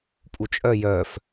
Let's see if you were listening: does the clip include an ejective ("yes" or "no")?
yes